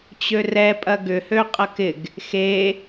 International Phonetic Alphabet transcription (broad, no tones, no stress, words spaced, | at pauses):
t͡ɕørɛ pʼɐɡʏ høqʼɐkɪɡ | xe